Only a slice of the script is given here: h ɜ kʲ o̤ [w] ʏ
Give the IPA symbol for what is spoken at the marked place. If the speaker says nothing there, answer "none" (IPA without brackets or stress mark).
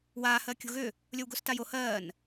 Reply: ɣ